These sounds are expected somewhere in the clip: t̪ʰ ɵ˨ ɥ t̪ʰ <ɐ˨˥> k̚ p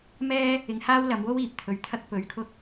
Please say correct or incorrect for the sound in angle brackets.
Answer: incorrect